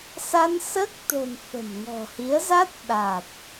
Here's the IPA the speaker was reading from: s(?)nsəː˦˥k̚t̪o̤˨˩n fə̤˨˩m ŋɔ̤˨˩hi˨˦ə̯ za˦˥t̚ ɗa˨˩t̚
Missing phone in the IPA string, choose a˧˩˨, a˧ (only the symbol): a˧